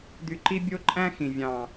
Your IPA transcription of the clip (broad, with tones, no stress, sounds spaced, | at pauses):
d̪ y˨ ǃ i˧ bʲ o˧ ǃʼ æ̃˦ x ĩ˨ vʲ ɑ̃˨